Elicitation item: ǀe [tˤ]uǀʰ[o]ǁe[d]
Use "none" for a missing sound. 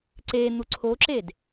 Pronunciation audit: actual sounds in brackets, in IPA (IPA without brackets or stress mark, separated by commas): n̪, o, d